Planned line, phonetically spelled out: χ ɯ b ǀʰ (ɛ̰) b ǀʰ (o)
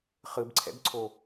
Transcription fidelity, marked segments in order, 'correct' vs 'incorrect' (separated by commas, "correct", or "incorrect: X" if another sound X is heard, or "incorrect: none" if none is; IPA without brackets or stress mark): correct, correct